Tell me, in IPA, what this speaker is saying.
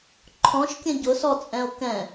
ǃʰ ɔ̃ ʃ kʲ ə̃ ɟ ʊ s ɔ t͡sʼ ɛ̃ o̯ k ɛ̃

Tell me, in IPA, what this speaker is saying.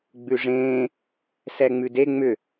ɡ͡b ʉ ʐ ẽː | s ɛ ŋ͡m ʉ d e ŋ͡m ʏ

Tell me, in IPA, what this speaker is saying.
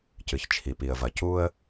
c ɨ˨ ç t͡ʃʰ i˨ p i˨ ə̯ v ɐ˨ c u˦ ə̯

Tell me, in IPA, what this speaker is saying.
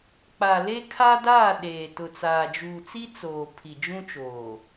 k͡p a˨ l e˦ kʰ a˦ d aː˦˨ ɗ eː˨ t ʊ˨ t͡s aː˨ d͡ʒ uː˨ t͡s i˦ t͡s oː˨ pʰ i˨ d͡ʒ ũ˦ t͡ʃ oː˨

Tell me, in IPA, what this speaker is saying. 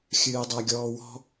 xʲ ɨː dˤ æ ɡʲ ɔː w ɔ̤

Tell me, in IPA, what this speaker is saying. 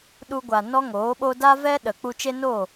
ɗ u˧ ɡʷ a˨ n ɔ˦ ŋ oː˨˦ ɓ o˦ d a˦ v ɛ˦ ɗ ə˨ k͡p u˧ t͡ʃ e˦ n o˦˨

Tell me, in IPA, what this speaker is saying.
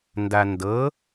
n d a n d ɤ

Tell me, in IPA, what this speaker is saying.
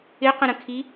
ɪ q ə̃ ɾ ə̃ kʰ i

